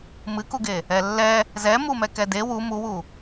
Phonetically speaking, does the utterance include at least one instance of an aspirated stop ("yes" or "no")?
no